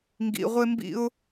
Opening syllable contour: low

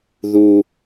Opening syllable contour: low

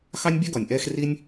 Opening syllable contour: high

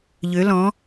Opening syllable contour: rising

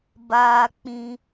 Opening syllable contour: low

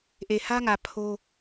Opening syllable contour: low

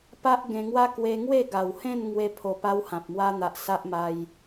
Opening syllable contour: high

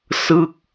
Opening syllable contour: falling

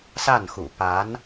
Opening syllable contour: falling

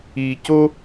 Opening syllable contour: low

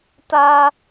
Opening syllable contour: high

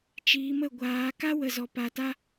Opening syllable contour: rising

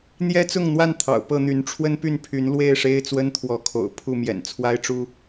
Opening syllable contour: high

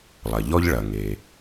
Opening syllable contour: low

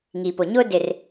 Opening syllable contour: low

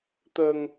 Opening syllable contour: low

